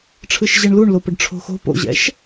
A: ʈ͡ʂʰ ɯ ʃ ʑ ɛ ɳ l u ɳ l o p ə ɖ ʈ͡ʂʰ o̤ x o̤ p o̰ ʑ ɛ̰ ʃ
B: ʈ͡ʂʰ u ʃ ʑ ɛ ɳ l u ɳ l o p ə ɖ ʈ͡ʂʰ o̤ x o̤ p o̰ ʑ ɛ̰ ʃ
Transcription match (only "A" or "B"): A